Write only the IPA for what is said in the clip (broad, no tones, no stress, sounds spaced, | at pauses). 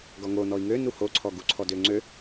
ɡ ɔ ŋ o n ɔ i̯ ŋ ø n u h o ǀʰ ɔ ɡ u ǀʰ ɔ d ø ŋ͡ǀ ø